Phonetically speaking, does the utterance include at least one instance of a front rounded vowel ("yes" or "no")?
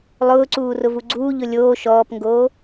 no